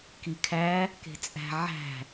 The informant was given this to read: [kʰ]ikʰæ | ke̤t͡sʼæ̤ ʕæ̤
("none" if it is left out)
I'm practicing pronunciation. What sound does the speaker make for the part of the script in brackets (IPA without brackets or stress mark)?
k